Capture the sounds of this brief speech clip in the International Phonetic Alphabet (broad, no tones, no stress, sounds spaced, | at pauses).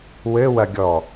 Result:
w ɘ w ɐ ɡʲ ɔ